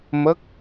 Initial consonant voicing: voiced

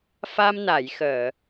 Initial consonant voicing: voiceless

